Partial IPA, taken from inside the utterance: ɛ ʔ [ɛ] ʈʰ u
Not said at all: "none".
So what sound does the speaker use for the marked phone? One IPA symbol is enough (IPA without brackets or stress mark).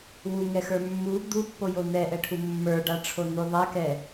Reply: ɛ